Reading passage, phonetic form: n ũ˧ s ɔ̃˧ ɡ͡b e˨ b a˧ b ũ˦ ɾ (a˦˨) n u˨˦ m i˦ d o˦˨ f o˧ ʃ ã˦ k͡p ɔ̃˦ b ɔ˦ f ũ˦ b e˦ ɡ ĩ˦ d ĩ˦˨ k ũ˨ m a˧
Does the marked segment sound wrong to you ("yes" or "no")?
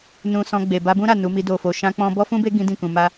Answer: no